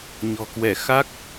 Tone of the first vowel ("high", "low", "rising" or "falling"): low